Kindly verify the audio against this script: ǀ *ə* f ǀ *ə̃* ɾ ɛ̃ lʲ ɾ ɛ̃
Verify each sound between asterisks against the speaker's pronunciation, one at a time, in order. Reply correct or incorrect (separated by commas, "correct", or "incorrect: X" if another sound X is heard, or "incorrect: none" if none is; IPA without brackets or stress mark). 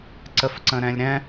correct, correct